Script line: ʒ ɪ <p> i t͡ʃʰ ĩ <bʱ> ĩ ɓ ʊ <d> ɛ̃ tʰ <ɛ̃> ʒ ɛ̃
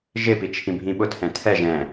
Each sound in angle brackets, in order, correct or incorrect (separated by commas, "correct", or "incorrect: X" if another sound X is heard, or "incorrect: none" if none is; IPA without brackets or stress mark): correct, correct, incorrect: tʰ, incorrect: ɛ